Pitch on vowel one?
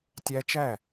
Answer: high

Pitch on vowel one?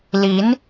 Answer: rising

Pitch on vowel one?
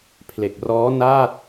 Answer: low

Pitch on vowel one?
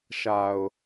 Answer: low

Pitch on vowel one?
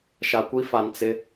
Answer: low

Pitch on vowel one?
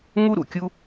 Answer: high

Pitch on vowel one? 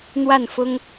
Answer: falling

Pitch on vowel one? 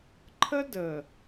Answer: high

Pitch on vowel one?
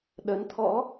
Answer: rising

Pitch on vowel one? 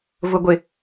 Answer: low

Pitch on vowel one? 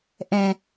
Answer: low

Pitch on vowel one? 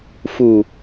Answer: low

